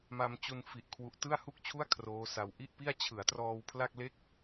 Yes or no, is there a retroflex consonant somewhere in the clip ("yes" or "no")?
no